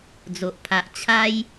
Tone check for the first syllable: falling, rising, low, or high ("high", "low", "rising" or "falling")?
low